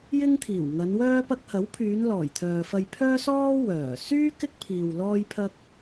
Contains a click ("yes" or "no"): no